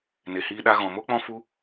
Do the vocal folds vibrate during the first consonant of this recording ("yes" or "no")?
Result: yes